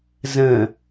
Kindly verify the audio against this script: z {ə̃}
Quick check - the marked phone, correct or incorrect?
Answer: correct